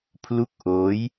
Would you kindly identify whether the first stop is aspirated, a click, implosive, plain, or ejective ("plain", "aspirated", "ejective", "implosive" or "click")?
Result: aspirated